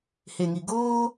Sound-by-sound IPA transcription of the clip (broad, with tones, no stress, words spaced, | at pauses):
he˨ŋi˨ ɡoː˦